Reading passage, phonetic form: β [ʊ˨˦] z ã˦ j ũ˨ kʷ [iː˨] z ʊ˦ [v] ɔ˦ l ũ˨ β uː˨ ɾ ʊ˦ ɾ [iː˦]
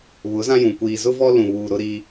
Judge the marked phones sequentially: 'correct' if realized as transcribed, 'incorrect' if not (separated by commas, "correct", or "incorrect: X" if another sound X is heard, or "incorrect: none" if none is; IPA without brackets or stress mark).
correct, correct, correct, correct